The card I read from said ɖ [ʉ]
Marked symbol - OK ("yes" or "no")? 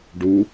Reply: no